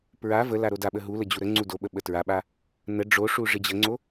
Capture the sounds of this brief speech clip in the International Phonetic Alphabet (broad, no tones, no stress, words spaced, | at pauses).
pɹa vəla ɾodaɓə ɦulə d͡ʑuɾəŋ͡ǀu doɓə ɓətɹaɓa | nə ɖ͡ʐoʂu ʐɪd͡ʑəŋ͡ǀo